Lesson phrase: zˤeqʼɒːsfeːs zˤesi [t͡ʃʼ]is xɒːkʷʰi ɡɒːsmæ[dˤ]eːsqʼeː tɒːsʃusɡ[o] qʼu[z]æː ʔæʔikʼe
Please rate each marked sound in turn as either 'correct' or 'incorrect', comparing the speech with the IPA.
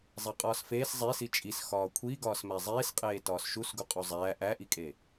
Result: correct, incorrect: zˤ, incorrect: u, incorrect: zˤ

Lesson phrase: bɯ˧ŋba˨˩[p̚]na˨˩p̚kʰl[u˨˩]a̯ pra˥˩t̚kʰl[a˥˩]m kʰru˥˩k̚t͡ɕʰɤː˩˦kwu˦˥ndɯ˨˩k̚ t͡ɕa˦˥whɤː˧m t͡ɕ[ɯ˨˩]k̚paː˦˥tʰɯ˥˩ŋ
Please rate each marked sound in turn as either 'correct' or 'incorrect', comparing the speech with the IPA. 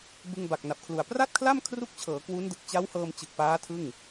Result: incorrect: k̚, correct, correct, correct

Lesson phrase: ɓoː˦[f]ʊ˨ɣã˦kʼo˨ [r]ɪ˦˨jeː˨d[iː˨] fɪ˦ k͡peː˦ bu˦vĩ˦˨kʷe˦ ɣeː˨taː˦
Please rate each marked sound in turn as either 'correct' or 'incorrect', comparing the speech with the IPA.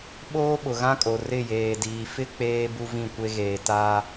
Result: incorrect: ɓ, correct, correct

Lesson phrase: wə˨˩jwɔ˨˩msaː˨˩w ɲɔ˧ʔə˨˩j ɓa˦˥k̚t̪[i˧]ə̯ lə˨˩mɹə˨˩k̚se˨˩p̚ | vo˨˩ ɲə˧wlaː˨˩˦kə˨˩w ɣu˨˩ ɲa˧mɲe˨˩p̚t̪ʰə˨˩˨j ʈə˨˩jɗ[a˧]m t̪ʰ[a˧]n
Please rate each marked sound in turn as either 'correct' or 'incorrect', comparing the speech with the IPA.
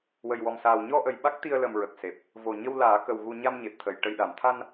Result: correct, incorrect: a˨˩˨, correct

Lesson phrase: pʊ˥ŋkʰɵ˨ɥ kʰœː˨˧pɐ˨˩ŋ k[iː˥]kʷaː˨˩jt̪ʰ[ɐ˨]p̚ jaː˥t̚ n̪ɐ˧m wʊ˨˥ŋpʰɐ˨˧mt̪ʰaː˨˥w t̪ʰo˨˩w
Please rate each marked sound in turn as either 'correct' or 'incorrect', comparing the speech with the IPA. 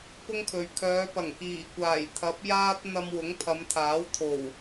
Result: incorrect: iː˨˩, incorrect: ɐ˨˥

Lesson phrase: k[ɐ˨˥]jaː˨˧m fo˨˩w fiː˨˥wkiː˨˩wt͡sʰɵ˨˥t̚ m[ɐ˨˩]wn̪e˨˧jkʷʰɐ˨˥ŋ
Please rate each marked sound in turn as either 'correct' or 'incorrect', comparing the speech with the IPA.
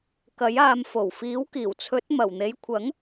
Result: correct, correct

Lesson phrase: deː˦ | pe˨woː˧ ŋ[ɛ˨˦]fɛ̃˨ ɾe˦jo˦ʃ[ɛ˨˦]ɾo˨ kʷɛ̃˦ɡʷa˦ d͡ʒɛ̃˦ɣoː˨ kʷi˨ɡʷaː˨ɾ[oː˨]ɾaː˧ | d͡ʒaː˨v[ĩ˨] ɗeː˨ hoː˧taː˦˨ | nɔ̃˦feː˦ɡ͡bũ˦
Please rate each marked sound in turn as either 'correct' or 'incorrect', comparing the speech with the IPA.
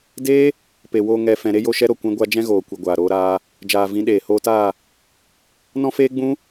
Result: incorrect: ɛ˨, incorrect: ɛ˦, incorrect: oː˧, incorrect: ĩ˨˦

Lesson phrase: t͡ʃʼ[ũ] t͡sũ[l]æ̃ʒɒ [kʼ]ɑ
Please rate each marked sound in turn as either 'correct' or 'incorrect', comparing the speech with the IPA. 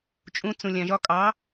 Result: correct, incorrect: lʲ, correct

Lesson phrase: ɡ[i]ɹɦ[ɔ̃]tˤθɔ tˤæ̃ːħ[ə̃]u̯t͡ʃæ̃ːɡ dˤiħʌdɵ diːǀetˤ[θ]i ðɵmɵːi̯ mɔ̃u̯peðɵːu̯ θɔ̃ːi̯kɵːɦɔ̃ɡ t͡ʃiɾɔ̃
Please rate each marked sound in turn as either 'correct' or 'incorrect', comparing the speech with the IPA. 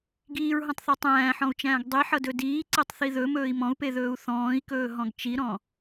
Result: incorrect: iː, correct, incorrect: ɔ̃, correct

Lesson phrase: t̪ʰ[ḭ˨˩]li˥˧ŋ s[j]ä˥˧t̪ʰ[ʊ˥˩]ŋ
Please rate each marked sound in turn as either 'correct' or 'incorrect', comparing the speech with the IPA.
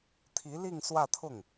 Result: incorrect: i˧˥, incorrect: w, correct

